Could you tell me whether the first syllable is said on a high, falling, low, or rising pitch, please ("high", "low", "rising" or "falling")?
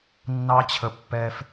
high